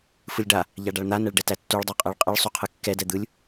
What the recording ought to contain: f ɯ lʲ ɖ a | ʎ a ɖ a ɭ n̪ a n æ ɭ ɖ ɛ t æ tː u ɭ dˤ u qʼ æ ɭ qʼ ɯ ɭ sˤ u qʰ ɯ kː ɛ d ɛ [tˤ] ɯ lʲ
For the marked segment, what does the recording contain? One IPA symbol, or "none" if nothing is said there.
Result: d̪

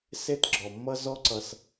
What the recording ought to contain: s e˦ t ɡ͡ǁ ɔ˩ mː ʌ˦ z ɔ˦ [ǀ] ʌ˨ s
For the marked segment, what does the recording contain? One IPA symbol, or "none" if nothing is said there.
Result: ǀ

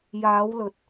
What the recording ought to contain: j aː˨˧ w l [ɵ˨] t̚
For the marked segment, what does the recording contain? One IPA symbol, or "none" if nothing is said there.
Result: ɵ˨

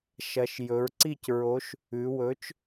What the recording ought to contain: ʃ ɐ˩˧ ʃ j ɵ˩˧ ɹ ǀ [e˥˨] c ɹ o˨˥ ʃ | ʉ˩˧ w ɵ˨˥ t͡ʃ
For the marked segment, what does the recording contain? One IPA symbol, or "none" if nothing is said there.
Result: i˥˨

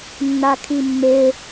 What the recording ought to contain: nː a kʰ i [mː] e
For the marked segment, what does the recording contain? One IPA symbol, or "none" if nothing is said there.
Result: mː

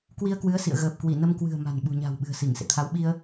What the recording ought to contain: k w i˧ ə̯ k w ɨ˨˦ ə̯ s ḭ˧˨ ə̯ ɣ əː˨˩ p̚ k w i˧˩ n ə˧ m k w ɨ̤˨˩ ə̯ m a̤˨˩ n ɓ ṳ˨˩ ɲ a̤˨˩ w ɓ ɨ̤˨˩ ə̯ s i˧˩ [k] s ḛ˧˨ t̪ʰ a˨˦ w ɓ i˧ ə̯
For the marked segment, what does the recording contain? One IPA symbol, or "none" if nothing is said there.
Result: ŋ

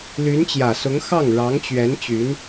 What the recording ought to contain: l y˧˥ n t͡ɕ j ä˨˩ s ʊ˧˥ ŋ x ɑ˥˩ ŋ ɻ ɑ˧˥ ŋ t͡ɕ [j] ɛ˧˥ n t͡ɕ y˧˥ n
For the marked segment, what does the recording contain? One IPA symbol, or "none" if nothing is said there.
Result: ɥ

